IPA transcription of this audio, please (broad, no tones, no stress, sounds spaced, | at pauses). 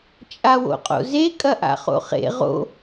t͡ʃʼ a w o̰ qʼ o̰ z e kʼ ɐ ʔ a̰ χ o̰ χ ḛ ʁ o̰